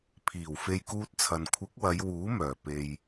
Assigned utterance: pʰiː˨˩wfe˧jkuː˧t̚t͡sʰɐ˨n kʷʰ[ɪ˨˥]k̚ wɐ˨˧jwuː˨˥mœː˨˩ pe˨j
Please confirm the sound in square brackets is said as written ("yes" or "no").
yes